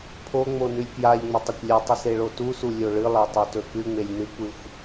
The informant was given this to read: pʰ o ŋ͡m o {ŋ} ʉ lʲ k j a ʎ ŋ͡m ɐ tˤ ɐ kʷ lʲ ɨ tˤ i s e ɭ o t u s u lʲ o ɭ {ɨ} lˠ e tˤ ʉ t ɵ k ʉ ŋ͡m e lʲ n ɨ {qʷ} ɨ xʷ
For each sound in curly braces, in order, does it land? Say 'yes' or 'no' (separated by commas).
no, yes, no